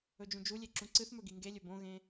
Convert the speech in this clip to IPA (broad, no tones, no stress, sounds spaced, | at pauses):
ɵ d͡ʒ ũ d͡ʒ u lʲ e ǁ ũ ǀ ɨ θ m ɵ ɡ i ŋ ɡ e lʲ ɵ b õ ɣ ẽ